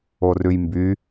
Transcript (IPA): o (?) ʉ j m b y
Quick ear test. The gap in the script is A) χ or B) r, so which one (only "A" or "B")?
B